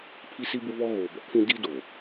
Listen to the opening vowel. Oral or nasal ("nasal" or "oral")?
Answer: oral